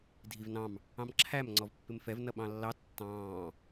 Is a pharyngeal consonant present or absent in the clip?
absent